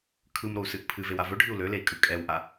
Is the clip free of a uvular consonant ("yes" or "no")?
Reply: yes